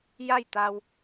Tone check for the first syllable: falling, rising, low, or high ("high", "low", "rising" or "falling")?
falling